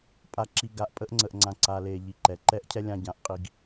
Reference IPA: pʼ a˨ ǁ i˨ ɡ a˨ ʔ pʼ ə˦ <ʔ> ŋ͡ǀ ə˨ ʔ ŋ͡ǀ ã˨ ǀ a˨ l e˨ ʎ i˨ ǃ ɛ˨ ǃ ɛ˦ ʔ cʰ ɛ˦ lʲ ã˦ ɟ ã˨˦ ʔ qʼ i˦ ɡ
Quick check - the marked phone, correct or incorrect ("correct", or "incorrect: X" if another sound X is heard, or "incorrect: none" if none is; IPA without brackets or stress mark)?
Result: correct